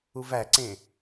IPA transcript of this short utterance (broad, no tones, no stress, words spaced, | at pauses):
uvæǀẽ